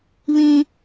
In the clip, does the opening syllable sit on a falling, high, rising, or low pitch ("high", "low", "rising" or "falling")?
high